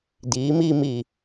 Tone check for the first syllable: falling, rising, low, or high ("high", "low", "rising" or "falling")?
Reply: rising